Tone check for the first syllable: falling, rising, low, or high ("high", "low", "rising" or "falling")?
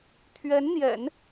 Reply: rising